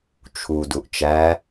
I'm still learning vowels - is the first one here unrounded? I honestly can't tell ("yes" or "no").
no